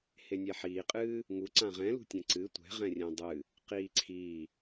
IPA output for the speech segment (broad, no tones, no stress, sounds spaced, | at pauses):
h e nʲ ɛ ħ iː qʼ ɨː | ŋ u ǀ ã ʁ ɛ̃ l ṳ tʲ ɛ̃ ǀ ɨ tʷ ɛ̤ ʁ ɛ̃ rʲ ɛ̃ dˤ ɨ | q iː ǀʰ i